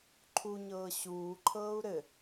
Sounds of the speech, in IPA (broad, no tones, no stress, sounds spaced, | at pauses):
ǃʰ u ɲ ɤː ɕ uː ǃʰ ɤː u̯ ɾ ɘ